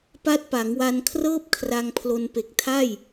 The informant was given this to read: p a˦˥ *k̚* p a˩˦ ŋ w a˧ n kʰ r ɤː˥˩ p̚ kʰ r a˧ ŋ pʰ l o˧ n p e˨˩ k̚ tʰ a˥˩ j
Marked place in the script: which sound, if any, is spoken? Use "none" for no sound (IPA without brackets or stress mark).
t̚